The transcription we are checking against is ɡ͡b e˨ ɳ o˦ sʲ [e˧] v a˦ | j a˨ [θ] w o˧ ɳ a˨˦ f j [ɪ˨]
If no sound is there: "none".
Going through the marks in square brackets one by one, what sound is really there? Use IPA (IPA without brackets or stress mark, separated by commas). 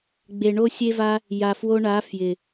e˦, f, ɪ˨